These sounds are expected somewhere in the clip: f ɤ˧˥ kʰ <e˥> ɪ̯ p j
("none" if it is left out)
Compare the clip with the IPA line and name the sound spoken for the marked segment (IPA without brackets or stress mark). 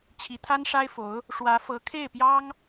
e˥˩